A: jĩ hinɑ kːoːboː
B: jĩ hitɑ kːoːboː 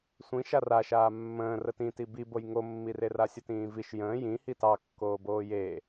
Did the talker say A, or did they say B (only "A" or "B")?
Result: B